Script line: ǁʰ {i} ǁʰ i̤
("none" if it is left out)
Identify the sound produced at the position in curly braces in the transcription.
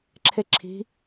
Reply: e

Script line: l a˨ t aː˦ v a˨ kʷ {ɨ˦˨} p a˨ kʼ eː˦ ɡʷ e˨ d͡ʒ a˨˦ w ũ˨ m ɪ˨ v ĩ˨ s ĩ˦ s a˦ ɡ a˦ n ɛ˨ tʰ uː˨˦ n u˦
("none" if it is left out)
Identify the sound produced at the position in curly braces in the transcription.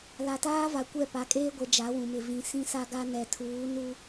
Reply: ɛ˦˨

